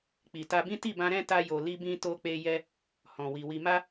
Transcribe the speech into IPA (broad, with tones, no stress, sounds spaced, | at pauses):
k͡p i˨ t a˧ b ĩ˦ t i˦˨ b ã˧ ɾ ɛ̃˦ t a˧ j o˨ l i˧ b ĩ˧ t o˧ k͡p e˧ j ɛ˦ | h ɔ̃˨ w i˨ w i˧ m a˦